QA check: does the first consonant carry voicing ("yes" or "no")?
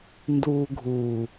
yes